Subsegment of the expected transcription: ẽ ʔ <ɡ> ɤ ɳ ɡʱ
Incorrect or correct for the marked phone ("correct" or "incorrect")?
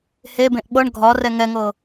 incorrect